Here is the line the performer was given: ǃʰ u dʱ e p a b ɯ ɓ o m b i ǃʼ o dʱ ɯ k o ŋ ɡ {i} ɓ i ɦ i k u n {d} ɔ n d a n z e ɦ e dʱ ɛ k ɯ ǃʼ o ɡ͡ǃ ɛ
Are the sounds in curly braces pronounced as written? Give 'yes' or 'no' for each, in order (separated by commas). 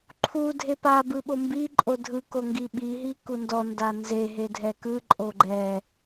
yes, yes